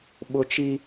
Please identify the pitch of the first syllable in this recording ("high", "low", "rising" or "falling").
high